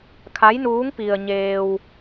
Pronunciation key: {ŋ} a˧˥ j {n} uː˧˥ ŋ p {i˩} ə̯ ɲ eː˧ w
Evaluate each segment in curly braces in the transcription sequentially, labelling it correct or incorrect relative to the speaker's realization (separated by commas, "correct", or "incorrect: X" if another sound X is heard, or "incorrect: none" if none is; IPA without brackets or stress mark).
incorrect: kʰ, correct, incorrect: i˧